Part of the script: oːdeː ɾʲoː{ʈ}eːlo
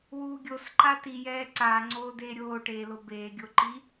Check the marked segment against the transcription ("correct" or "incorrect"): correct